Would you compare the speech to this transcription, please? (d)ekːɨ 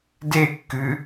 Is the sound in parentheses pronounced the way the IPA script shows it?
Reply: yes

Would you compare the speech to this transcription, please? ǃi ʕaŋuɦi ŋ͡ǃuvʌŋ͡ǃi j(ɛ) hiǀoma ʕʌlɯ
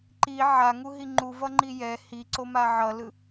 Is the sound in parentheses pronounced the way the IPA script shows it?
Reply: yes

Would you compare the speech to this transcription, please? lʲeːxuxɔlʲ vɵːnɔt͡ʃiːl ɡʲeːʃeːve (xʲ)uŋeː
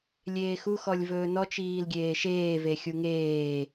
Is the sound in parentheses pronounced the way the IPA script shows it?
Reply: yes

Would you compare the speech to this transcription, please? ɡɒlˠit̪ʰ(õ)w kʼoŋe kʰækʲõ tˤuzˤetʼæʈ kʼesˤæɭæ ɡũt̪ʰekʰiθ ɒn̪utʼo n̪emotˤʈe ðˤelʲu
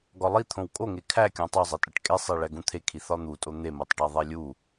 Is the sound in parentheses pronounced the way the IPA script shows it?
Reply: yes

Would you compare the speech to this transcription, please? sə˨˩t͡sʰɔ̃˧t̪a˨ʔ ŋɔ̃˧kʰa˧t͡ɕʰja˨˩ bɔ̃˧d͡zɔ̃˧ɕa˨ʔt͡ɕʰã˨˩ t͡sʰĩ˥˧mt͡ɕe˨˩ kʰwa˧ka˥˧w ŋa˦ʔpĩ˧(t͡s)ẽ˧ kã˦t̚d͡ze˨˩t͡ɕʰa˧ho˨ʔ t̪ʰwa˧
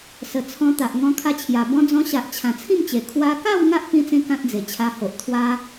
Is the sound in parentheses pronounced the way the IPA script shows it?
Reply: yes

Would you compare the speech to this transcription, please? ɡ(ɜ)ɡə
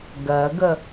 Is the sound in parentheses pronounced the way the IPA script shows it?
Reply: yes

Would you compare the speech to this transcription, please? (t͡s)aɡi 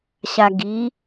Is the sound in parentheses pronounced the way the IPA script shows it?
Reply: no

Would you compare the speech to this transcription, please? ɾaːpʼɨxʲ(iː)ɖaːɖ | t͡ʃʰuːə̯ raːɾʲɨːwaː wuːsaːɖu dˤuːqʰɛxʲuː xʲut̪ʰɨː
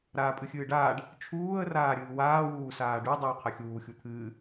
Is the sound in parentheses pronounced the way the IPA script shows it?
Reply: no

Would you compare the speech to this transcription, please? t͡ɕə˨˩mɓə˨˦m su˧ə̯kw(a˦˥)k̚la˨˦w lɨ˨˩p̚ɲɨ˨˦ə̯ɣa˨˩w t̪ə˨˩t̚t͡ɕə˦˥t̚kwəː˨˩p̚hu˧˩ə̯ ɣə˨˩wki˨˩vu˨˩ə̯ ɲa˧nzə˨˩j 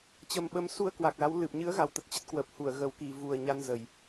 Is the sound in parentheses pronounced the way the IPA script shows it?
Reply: no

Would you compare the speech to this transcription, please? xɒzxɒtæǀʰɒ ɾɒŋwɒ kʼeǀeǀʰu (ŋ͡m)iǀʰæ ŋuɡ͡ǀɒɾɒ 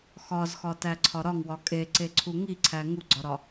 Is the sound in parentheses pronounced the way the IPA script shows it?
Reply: no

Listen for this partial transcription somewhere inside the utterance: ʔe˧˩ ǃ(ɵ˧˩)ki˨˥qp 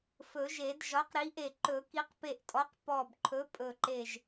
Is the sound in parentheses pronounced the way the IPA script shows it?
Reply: no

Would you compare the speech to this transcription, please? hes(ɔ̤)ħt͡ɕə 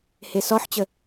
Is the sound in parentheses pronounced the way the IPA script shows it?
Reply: no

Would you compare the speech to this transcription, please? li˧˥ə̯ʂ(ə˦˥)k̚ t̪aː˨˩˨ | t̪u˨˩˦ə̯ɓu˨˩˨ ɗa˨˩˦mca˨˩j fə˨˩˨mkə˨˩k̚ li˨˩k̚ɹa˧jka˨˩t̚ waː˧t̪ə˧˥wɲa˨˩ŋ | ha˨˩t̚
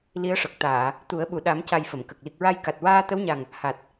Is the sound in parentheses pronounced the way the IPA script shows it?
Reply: no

